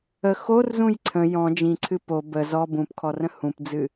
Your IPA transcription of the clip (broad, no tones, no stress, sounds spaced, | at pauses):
ə x o r z ũ j ǀʰ ə̃ j ɔ̃ d͡ʒ ĩ ǀʰ ɨ p o b ə z ɔ b ũ p kʰ ɔ r ə̃ h ũ p d͡z ɨ